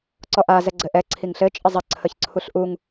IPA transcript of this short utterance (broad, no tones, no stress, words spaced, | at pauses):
ǀɔʔa zɛɡ͡ǀɘʔɛ ǀʰiŋɬɘ t͡ʃʼəzˤə ǀʰəçǀʰuɬʔuŋ